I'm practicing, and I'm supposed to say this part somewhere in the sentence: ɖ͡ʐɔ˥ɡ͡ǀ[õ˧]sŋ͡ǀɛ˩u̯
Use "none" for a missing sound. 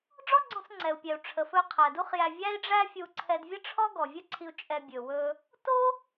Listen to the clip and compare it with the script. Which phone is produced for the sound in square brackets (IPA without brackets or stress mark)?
õ˧